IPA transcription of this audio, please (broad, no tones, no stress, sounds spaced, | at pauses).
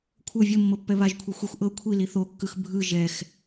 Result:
kʷʰ ɤ vʲ ɤ mː ɤ pː ɛ β a ʒ kʷʰ i xʷ e xʷ ʔ ɤ kʷʰ i l i θ o kː ɯ x bʱ ɯ ʒ ɛ x